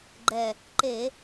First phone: ɡ͡ǃ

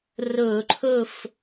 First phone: r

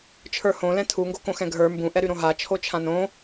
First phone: t͡ʃʰ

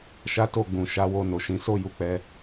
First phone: ʃ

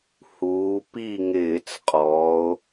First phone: h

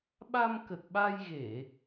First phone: ɓ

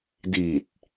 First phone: d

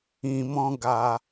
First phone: ĩ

